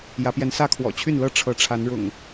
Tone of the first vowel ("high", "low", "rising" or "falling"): rising